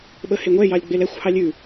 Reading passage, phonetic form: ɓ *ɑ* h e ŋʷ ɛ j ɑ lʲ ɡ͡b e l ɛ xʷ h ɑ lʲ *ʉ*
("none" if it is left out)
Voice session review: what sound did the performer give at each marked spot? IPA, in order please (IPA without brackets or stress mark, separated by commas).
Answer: ə, ʉ